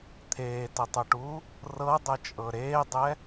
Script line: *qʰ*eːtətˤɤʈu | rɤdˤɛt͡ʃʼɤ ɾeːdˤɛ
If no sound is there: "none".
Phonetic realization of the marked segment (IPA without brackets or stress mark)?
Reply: t̪ʰ